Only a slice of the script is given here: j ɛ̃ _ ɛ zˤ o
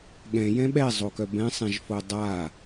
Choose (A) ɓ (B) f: A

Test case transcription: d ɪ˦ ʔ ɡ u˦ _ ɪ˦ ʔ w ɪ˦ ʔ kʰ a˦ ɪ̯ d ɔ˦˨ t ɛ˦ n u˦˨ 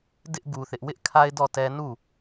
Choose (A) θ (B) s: A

